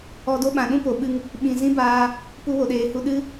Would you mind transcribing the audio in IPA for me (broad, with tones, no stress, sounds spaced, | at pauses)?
ɔ˧ d o˦ ɓ ã˨ ɗ ũ˦ p o˨ ɓ ɨ˧ ŋ | ɓ ĩ˨ z ĩ˦ b aː˧ | p u˧ w o˨ ɗ eː˨ h u˧ ɗ ɨ˦